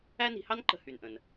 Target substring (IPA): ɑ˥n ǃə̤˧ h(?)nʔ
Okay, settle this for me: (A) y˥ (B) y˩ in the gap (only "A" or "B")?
B